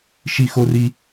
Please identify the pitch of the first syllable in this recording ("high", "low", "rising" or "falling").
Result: high